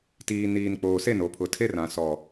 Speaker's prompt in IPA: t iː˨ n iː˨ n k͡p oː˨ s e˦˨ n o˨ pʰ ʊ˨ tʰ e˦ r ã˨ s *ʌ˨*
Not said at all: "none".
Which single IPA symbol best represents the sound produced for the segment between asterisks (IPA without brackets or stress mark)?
ɔ˨